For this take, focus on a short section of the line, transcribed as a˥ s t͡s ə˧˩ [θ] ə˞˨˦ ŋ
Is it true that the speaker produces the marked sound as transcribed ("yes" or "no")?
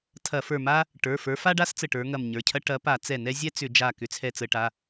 no